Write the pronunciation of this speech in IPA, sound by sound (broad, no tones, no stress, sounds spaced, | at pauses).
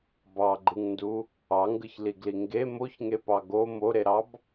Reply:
b ɑ ɡ͡ǃ ɯ ŋ n d u | ɑ ŋ ɡ ɯ ç l i ɡ l i ŋ ɡ e m o ç ŋ e p ɑ ɡ o m o ɾ e ɾ ɑ b